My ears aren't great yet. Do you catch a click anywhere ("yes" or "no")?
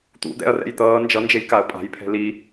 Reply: no